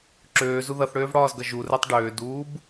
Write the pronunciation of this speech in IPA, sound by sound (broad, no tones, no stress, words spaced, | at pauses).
ǁøːzu ðʌθɽøːvɽɒːzɡʌ ʒurɛtˤ ɖøːduːb